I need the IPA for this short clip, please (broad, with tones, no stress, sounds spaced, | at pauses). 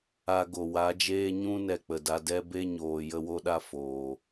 a˧ ɡ o˨ w a˨˦ d͡ʒ eː˦ ɲ ũ˦ n ɛ˧ k͡p ə˨ d a˧ d ɛ˦ b e˦ ɲ oː˨ j ə˧ w o˧ ɗ a˧ f oː˨